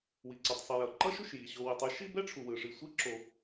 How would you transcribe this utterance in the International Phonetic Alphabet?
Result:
w i˨ ǀ ɛ˨ tˤ sˤ i˨ j ʌ˨ ǃ ʌ˦ ʃ u˩ ʃ j i˩ ɕ o˨ w i˨ tˤ ɯ˥ ʃ i˥ b ɛ˥ ʈ͡ʂʰ u˩ w ɯ˩ ʂ i˨ sʷ i˦ ǁ o˩

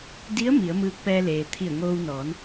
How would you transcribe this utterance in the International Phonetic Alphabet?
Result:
d i˧˥ ə̯ m i˩˧ ə̯ m ɯː˧ k̚ p ɛː˧ l eː˩ t̪ʰ i˧˩ ə̯ ŋ oː˧ w n ɔː˩˧ n

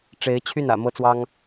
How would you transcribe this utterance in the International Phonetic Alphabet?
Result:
ʈ͡ʂ e˧˥ ɪ̯ t͡ɕʰ y˥˩ n ä̰˨˩ m ɤ˥ t͡s w ɑ˥ ŋ

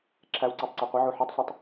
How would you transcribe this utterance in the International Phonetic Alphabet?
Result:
ǁʰ æ w ǀ æ tˤ ǀ e qʷ ə ʕ u ħ e tˤ sʷ e tˤ

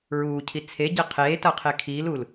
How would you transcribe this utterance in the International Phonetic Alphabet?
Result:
ɹ uː cʰ i t͡sʰ e ɟ e qʰ eː t ʌː qʰ e kʰ iː l u l

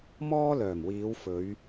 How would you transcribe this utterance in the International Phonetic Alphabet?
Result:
m ɔː˥ l œː˨˩ m w iː˨˧ w f ɵ˨˧ ɥ

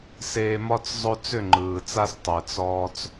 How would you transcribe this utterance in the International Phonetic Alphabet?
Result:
s eː˨ m ɒ˦ t͡s zˤ ɵ˦ t͡s ʏ˦˨ ŋ͡ǃ ɯː˨ t͡s a˦ s tˤ ɛ˨ t͡s ɔː˦ t͡s

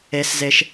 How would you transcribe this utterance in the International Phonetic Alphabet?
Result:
e˩ s z e˩ ʃ

